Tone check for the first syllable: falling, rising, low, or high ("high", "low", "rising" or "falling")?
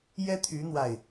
high